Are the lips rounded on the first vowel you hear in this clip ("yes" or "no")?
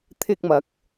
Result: no